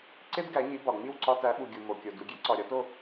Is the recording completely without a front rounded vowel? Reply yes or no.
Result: yes